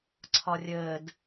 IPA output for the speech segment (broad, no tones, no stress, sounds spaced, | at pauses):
ǀʰ ɒ rʲ əː d